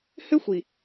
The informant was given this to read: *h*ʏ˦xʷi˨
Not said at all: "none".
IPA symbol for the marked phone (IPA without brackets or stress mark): h